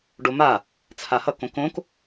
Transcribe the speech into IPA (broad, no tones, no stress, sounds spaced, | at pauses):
ɖ o m a | t͡sʰ a h ʌ k õ k õ k